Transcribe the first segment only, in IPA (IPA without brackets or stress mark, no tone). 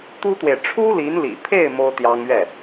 t̪